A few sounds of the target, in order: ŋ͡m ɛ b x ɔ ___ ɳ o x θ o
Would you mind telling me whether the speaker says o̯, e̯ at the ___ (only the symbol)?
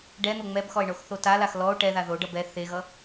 e̯